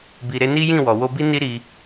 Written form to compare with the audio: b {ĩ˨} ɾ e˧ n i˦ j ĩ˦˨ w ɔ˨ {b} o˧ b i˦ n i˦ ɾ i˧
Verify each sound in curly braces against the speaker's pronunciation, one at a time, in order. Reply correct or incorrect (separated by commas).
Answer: incorrect, incorrect